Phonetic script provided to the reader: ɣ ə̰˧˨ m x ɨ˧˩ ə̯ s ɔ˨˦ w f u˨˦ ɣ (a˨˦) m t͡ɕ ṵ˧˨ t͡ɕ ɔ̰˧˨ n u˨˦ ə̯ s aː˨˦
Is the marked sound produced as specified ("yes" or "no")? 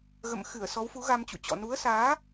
no